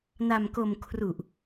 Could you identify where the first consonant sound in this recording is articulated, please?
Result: alveolar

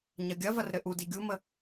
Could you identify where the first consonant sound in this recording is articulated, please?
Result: palatal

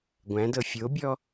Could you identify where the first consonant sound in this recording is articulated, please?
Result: velar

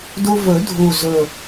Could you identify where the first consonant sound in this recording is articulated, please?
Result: alveolar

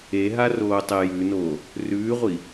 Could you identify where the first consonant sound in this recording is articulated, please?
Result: glottal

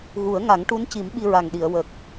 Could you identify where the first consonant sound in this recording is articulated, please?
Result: velar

